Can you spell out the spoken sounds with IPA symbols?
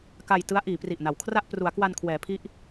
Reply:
k a˧ j t ɯ˦˥ a̯ ʔ iː˩˦ p r i˨˩ ʔ n a˩˦ w kʰ r a˥˩ ʔ p r u˩˦ a̯ k w a˧ n kʰ w ɛː˩˦ pʰ i˦˥ ʔ

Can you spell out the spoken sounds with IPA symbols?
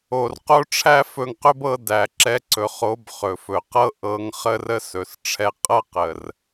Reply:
o˨ r q o˦ ʈ͡ʂʰ æ˦ f ɵ˧ ŋ q ɵ˦ b ɤ˧ d æ˨ ǁ ɛ˧ ǀ ɵ˨ χ o˨˦ b χ ɵ˨ f ɵ˨ q ɤ˦ ʔ ɤ˧ ŋ χ ə˦ r ə˦ s ɵ˨ s ʈ͡ʂʰ ɛ˧ qʼ ɤ˦ q ə˨ r

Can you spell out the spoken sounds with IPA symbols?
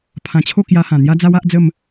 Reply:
pʰ ã˧ t͡ɕʰ o˥˧ k j a˧ h ã˨˩ n̪ j a˦ d͡z a˦ w a˦ ʔ d͡z ə˥˧ m

